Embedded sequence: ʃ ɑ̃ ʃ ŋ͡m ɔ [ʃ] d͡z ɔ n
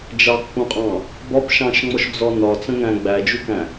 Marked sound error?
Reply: no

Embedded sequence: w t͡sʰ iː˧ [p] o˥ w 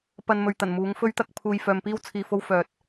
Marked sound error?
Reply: yes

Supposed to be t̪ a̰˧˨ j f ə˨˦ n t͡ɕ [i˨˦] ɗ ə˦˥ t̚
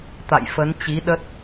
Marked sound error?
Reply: no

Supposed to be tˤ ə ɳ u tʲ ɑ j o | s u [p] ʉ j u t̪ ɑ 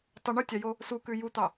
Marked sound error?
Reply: yes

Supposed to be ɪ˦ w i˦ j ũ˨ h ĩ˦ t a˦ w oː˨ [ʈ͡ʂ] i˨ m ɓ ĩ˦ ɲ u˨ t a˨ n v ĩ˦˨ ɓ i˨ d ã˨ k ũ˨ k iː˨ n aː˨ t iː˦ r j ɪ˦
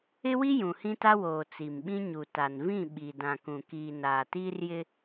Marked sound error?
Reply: yes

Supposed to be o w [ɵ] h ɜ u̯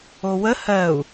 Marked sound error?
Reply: yes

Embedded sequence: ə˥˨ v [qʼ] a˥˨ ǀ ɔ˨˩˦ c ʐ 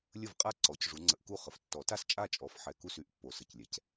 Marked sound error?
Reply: no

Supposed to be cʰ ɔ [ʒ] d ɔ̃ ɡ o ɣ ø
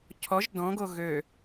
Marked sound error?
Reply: no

